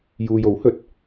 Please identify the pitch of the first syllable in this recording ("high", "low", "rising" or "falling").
low